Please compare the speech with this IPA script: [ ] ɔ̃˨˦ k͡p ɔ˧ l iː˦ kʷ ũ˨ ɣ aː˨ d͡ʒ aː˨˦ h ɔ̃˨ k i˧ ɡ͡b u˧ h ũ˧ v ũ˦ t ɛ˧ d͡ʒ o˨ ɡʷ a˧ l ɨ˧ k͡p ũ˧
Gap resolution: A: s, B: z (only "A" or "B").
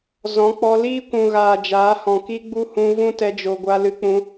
B